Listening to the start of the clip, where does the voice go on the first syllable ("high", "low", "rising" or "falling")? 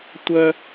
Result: high